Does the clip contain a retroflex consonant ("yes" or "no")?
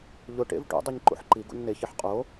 yes